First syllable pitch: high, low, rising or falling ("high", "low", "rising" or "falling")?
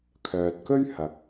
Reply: low